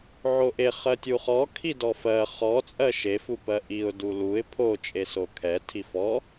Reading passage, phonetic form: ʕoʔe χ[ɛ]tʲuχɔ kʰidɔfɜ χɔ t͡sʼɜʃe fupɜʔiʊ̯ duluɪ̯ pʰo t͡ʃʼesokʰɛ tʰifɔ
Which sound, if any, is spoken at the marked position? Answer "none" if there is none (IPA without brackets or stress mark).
ɜ